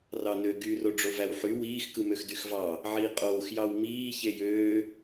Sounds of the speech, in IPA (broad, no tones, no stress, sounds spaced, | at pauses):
r ɑ n ø ɡ y r o ɖ͡ʐ o v æ w ħ y w iː x k ɯ m ø x d y x v ɑ | ʕ iː qʼ oː x j ɑ w m iː ç e j øː